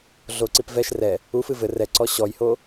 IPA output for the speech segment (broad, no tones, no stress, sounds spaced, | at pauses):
ɮ o ǀ i p v ɛ ʃ r ɛ | u f ɨ v ɘ r ɛ ǀ ɔ ɕ ɔ j h o